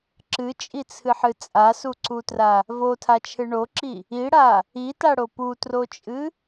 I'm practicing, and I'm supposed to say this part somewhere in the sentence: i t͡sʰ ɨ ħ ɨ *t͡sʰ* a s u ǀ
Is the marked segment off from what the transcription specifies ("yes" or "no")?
yes